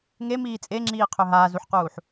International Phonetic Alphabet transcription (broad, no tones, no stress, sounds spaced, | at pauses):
ŋ e m iː t͡sʼ e ŋ͡ǁ iː qʰ ø ɦ aː z u ħ q uː ħ